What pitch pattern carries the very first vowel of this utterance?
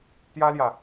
high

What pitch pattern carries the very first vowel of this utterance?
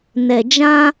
low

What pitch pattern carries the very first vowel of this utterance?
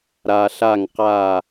low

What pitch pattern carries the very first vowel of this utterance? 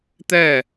falling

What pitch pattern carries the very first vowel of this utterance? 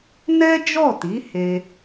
high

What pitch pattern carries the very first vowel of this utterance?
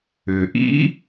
low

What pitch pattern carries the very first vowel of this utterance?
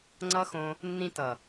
high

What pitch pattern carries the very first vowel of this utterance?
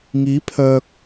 rising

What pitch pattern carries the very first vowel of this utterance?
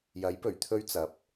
rising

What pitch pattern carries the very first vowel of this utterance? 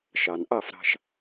low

